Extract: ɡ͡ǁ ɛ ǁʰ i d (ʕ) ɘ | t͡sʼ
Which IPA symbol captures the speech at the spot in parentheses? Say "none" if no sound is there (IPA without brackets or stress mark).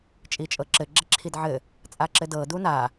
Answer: ʕ